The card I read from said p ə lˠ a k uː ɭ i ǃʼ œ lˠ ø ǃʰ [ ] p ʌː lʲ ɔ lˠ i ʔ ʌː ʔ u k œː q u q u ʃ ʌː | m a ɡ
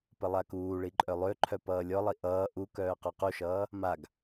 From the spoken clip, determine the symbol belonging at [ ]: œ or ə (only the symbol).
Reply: œ